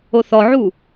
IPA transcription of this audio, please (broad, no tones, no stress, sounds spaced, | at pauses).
o θ ɔ ʕ u